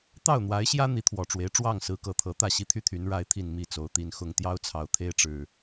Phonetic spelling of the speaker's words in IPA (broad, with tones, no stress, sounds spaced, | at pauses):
t̪ ɑ˥˨ ʊ̯ n̪ w a˨˦ ɪ̯ ɕ j ä˦ n̪ i˨˦ t̪ʰ w ɔ˨˩ ʈ͡ʂ w e˨˦ ɪ̯ ʈ͡ʂ w ɑ˥˨ ŋ s ɹ̩˨˦ k ɤ˨˩ t̪ʰ ɤ˨˦ t̪ ä˥˨ ɕ i˦ t̪ʰ y˥˨ t̪ʰ y˨˦ n ɻ a˨˦ ɪ̯ t̪ʰ i˨˩ n m i˥˨ t͡s o˨˦ ʊ̯ t̪ i˨˦ n x ʊ˨˩ ŋ t̪ j ɑ˦ ʊ̯ t͡sʰ ɑ˨˩ ʊ̯ t̪ʰ e˦ ɪ̯ ʈ͡ʂ ɻ̩˨˩